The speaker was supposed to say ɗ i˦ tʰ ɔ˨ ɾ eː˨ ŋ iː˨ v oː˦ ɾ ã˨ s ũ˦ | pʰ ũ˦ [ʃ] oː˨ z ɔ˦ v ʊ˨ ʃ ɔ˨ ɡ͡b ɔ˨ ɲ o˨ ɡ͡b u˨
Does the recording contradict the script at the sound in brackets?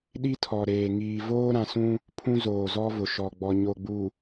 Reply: yes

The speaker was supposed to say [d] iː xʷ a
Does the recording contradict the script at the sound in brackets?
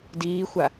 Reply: no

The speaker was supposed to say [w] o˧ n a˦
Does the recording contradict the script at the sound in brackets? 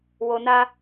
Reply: no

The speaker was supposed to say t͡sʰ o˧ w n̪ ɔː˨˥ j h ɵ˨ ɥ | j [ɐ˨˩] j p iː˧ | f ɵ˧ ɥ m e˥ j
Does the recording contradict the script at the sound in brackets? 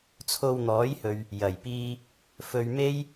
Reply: no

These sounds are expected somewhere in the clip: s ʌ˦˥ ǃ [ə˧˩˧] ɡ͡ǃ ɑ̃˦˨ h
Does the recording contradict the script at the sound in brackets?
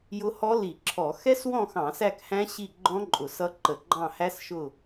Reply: no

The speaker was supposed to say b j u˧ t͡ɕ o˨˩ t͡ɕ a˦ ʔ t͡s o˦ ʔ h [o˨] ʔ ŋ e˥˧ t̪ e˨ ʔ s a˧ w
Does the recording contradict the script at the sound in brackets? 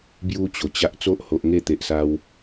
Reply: no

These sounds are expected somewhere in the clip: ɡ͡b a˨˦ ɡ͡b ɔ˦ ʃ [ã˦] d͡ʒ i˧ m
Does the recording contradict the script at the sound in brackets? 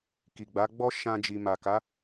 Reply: no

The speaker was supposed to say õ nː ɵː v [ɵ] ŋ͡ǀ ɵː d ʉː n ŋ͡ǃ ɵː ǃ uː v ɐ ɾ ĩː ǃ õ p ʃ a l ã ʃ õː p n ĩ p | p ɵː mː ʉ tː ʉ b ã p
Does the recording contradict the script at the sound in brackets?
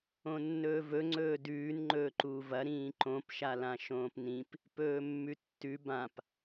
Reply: no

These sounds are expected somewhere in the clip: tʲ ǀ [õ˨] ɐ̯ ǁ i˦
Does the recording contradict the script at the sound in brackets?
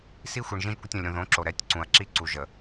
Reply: yes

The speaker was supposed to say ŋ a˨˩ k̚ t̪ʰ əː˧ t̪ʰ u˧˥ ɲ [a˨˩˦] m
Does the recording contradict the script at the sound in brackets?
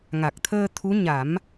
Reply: no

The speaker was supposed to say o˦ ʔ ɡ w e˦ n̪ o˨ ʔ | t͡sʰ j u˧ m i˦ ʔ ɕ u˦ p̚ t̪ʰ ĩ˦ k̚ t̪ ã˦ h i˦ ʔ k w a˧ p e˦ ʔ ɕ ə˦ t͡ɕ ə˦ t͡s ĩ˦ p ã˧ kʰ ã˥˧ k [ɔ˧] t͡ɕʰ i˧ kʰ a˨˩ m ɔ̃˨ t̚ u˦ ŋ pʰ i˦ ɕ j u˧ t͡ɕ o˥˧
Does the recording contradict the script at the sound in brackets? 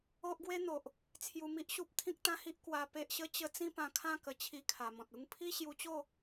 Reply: yes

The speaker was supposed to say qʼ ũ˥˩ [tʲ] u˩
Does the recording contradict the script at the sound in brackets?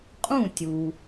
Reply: no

